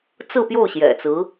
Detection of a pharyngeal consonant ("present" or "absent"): absent